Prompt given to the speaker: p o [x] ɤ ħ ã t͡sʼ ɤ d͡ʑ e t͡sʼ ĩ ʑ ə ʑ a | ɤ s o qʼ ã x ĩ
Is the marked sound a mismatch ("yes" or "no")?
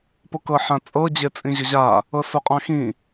yes